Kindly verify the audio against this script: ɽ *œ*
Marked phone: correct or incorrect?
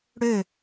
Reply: incorrect